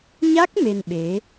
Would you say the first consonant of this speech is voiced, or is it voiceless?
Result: voiced